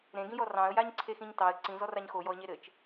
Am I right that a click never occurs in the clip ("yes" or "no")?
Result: no